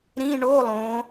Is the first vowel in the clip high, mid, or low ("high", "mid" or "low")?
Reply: high